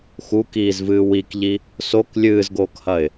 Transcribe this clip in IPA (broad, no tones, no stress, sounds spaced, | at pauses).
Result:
x u k iː z v ɨː w i k ʎ i | s o k lʲ ɨː z ɡ oː k h ɐ ɪ̯